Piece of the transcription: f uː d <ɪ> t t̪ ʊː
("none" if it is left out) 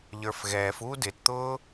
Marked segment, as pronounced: ɪ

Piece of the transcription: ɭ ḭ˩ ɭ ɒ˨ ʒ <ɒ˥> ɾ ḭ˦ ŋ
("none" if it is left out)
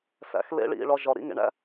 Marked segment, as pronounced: ɒ˩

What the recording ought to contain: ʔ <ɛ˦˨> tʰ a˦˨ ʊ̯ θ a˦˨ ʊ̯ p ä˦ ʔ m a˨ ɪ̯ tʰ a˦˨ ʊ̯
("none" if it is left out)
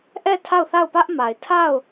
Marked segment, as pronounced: ɛ˦˨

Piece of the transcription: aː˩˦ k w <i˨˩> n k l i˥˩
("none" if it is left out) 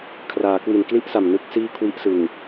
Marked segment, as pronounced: i˨˩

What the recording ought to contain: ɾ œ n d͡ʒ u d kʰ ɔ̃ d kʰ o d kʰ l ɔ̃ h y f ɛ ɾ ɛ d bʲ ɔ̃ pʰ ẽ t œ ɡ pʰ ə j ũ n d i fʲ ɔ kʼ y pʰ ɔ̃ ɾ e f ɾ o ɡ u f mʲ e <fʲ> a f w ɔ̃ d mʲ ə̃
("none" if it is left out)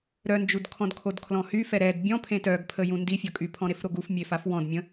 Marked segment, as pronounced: f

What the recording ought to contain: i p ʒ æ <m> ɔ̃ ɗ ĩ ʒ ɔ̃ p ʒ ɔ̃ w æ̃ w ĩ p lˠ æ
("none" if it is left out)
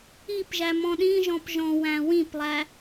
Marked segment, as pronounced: m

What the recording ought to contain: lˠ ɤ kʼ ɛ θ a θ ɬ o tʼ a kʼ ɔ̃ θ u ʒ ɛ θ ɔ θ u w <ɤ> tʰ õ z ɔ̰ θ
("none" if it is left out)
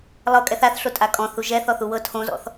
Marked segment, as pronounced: ɤ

